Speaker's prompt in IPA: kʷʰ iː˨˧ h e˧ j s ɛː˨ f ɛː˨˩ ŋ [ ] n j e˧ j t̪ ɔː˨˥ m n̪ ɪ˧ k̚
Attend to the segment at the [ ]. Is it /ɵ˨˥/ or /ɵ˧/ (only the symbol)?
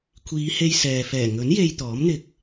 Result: ɵ˨˥